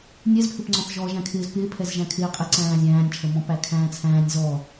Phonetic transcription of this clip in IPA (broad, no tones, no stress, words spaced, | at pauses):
nʲɛzpʰɪpŋ͡ǀɔ̃θ ʒɔːʒæ̃kʰɪːz pɪːpʰɛzʒæ̃ kʰɪːqʼɪ ǀæ̃ːzʲæ̃ːnʲt͡ʃʰə mɔ̃pækʰæ̃ːt͡sʰæ̃ːnʲ zɔ